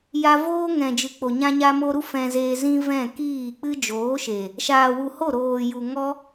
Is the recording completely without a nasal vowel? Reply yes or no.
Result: no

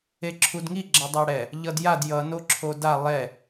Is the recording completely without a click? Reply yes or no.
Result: no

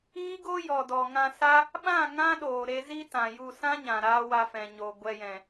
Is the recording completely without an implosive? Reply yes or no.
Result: no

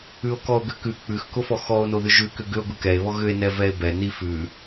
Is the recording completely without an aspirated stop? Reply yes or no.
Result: yes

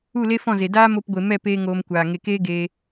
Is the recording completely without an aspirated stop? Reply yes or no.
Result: yes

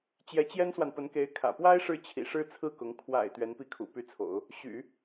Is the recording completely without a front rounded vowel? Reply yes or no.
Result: no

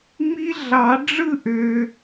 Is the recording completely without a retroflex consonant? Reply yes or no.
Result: no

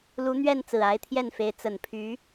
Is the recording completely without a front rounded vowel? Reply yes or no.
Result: no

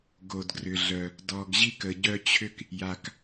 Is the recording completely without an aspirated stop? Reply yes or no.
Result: no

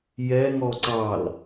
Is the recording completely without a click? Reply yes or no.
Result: no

